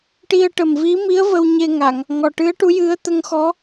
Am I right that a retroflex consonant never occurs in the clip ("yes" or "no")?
no